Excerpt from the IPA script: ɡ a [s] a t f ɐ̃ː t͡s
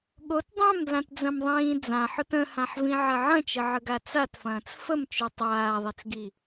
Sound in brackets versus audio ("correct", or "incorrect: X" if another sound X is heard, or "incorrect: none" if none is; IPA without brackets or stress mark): incorrect: t͡s